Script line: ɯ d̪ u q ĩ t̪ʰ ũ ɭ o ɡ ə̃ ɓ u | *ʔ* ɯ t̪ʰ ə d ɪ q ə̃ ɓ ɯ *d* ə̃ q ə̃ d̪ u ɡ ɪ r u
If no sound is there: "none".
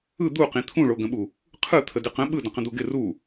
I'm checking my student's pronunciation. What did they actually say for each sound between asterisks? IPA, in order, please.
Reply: qʰ, d

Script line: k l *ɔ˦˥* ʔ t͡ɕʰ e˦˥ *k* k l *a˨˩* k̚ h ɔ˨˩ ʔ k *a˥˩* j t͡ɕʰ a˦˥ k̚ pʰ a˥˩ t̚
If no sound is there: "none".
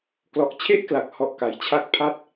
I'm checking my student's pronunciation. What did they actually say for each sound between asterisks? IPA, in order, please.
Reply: ɔ˨˩, ʔ, a˨˩, a˩˦

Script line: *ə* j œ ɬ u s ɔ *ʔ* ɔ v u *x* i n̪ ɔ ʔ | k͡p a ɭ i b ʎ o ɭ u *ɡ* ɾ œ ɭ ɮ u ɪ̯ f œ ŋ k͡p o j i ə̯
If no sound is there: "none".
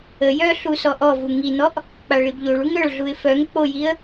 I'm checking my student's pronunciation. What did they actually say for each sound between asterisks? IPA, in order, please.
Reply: ə, ʔ, ŋ, ŋ

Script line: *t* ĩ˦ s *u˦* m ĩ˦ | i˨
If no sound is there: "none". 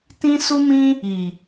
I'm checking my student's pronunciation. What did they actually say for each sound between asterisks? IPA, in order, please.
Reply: t, u˦

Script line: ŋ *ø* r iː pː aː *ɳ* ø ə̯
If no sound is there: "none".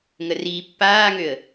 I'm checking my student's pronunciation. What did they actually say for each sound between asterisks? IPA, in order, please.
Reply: ə, ŋ

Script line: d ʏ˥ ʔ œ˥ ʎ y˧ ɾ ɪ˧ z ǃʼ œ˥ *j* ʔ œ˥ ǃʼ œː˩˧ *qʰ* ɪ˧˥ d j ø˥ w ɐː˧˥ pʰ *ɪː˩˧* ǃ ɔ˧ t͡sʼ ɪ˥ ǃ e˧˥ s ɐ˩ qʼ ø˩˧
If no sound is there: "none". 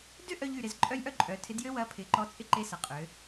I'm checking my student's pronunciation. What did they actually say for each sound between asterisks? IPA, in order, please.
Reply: j, tʰ, ɪː˩˧

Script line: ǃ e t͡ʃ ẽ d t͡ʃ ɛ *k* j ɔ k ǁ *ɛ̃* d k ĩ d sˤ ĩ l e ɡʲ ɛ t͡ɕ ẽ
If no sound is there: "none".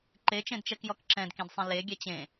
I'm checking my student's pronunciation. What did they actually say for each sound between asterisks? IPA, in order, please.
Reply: k, ɛ̃

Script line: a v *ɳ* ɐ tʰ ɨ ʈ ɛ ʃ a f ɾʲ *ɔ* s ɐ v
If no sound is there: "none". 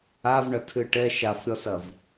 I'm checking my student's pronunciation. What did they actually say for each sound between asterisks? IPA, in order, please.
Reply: ɳ, ɔ

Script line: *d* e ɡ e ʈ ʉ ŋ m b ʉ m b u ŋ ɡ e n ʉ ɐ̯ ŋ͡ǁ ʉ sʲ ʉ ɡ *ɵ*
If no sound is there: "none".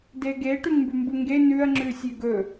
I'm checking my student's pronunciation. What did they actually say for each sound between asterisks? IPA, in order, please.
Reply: d, ɵ

